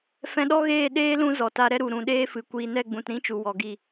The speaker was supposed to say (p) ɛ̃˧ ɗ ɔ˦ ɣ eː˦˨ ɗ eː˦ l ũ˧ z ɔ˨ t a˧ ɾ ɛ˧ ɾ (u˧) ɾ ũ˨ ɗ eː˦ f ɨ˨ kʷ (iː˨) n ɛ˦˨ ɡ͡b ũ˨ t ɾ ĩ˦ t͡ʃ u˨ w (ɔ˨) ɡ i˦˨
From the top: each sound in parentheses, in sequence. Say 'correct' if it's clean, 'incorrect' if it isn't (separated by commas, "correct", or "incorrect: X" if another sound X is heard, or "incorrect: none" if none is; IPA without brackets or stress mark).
incorrect: f, incorrect: u˨, correct, correct